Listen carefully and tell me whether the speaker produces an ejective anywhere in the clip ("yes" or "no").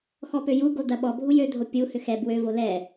no